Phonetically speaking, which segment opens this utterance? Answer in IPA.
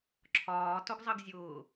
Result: ǁʰ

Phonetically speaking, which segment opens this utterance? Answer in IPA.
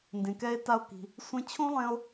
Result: n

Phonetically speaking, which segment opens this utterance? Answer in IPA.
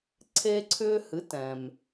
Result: ǀʰ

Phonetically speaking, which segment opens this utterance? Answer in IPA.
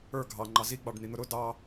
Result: ə˞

